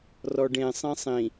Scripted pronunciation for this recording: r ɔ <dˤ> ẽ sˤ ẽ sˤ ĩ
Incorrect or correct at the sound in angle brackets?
incorrect: ɖ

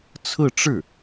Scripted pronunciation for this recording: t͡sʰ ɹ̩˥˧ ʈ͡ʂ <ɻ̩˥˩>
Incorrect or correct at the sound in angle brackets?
correct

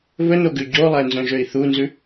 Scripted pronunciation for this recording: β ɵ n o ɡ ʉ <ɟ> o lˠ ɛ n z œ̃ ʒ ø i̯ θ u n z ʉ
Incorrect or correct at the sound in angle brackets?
correct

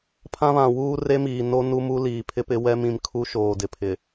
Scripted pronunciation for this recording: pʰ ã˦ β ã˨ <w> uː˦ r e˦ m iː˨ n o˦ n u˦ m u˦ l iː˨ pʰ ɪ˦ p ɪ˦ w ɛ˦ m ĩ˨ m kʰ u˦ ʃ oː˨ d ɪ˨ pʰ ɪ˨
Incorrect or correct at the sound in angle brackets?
correct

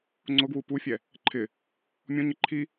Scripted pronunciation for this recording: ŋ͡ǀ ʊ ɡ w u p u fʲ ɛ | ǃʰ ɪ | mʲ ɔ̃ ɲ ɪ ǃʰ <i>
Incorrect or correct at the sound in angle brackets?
correct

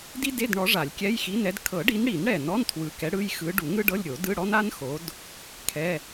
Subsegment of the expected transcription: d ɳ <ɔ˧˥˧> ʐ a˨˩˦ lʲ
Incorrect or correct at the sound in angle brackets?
incorrect: ɔ˨˦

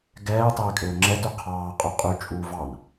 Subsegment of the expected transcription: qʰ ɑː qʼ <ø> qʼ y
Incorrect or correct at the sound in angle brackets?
incorrect: ʉ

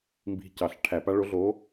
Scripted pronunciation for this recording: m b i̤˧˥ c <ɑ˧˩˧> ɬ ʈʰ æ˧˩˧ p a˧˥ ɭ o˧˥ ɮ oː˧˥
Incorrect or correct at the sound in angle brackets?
correct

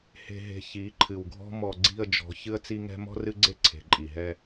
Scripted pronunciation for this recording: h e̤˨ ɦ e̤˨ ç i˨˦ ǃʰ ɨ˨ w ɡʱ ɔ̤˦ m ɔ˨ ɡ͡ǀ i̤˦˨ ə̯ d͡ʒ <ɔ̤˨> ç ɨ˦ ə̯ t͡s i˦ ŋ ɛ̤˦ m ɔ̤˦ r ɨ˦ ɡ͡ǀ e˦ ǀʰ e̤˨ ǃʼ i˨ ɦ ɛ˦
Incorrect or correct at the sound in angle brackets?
incorrect: ɔ̤˨˦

